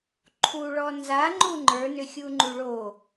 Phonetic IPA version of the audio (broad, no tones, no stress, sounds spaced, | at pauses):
ǃʰ u ɭ ɔ n z a ŋ͡ǃ u ŋ͡ǃ ə˞ n ʏ xʲ u ŋ͡ǃ u ɭ o